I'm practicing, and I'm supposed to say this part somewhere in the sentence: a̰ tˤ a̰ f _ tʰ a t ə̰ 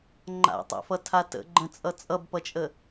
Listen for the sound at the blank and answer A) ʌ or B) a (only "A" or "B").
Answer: A